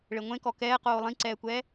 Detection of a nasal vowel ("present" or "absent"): present